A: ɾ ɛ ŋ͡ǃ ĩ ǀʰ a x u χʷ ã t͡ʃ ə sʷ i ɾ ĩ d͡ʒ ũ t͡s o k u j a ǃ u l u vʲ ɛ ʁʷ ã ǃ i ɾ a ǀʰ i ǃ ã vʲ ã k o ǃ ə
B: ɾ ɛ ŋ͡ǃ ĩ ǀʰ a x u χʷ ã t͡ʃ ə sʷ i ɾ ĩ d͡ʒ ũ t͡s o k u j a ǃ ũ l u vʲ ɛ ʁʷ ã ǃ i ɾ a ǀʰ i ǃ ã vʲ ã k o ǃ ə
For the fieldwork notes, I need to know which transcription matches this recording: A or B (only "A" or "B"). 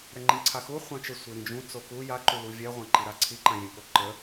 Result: A